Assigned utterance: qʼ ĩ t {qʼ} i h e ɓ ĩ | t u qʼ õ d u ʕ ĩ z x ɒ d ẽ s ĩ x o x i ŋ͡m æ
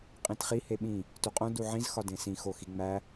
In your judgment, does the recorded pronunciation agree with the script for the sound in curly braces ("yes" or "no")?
no